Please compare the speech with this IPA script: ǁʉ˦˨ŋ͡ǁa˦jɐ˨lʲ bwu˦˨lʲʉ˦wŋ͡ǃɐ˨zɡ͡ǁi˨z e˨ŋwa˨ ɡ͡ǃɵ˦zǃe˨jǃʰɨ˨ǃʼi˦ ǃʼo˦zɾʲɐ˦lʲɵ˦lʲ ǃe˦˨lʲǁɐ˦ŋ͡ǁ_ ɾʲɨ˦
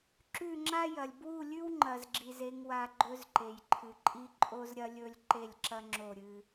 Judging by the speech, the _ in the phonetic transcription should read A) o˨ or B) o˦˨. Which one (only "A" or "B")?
B